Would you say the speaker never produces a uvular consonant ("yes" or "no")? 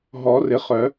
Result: no